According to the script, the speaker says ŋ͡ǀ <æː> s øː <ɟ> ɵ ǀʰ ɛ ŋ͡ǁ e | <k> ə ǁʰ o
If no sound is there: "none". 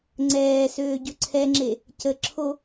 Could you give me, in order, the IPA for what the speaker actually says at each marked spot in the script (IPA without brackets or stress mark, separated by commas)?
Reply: ɛː, ɟ, c